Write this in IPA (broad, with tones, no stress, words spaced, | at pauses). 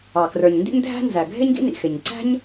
ɑ˩ krə˞˩ɲndḭ˥ɲdʱæ̤˥ nzæ˩ɡʱɪ˥ɲ ɡḭ˥nḭ˩xɪ˩ɲ ǀæ̤˥ɲ